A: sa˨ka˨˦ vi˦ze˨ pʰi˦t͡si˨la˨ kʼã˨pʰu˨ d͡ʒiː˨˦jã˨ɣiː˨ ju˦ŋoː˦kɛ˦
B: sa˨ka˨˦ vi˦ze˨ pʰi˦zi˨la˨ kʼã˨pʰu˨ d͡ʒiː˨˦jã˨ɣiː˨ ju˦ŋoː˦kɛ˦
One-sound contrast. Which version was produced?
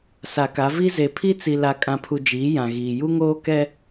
A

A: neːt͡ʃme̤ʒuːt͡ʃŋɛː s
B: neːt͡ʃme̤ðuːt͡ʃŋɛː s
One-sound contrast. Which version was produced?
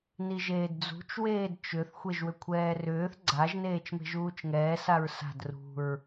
A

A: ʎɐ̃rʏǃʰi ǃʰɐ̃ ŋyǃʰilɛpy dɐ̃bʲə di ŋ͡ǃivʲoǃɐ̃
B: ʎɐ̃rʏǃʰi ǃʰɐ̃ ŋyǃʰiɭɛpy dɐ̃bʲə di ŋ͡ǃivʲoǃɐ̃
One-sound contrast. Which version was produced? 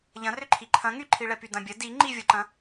B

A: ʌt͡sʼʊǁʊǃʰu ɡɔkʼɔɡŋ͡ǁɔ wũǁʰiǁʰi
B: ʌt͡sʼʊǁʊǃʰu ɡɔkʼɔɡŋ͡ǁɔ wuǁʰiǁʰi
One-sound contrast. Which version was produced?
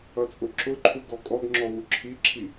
B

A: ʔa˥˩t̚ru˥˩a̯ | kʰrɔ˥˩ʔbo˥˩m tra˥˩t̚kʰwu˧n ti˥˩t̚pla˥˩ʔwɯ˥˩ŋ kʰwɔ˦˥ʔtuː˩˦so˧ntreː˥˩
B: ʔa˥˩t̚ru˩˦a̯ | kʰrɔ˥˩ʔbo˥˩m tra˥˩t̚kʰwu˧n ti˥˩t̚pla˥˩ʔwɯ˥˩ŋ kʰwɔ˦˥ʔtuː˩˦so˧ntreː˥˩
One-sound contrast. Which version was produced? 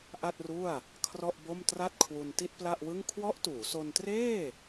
A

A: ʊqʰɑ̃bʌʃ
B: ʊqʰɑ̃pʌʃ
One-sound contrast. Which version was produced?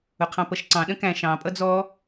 B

